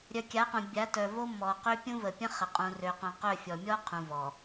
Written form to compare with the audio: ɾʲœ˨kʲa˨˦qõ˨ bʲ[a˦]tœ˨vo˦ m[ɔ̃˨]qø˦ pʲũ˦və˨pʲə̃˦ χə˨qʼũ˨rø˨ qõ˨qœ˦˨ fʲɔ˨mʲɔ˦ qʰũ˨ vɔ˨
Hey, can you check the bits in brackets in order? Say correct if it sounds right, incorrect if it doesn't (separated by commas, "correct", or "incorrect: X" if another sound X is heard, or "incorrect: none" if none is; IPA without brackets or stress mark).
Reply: incorrect: a˨˦, incorrect: ɔ˨